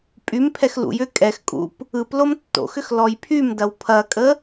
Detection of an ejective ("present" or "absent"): present